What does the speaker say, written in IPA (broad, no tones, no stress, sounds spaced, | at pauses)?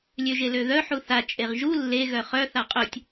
lʲ ø ʒ e l ø ð œ ħ u θ a t͡ʃʼ e ʁ ʒ u lː e ɣ œ χ œ θ a qʼ œ tʲ